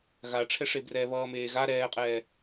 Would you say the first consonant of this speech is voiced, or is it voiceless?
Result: voiced